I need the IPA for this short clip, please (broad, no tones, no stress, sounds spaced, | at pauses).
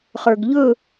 χ ə˞ ɡ ʎ ɵ